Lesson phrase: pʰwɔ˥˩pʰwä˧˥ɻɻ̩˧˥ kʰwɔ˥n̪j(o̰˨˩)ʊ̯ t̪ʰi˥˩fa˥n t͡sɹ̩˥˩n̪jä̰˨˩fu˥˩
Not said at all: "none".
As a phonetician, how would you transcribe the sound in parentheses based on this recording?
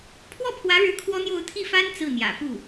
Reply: o˥˧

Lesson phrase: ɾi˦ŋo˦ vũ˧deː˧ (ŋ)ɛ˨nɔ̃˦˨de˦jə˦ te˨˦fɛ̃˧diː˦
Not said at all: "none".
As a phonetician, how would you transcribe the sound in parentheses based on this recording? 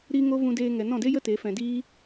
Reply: ŋ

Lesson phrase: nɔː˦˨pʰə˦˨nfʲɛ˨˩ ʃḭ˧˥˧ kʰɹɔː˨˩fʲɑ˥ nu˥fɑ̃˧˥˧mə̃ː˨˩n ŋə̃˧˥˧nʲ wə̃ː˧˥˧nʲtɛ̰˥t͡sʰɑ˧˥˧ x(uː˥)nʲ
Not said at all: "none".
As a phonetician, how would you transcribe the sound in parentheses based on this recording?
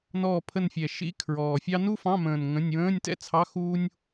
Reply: uː˥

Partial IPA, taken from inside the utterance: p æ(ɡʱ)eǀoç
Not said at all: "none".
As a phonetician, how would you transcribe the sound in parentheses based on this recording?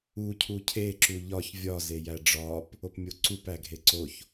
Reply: ɡʱ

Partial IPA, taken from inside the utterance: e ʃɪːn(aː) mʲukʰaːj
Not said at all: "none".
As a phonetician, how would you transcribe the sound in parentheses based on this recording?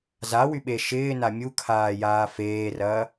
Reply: a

